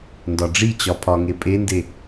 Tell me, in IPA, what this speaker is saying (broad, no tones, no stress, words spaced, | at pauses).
ndɒɖ͡ʐit͡ɕɒ pʰɒŋe pʼende